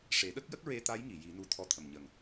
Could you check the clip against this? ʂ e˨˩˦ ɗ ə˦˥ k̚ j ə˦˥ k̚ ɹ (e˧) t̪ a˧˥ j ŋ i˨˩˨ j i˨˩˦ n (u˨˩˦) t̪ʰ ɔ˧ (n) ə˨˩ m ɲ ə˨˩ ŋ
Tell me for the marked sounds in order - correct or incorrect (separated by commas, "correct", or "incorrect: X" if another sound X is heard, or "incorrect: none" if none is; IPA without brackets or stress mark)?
correct, incorrect: u˧, incorrect: t̪ʰ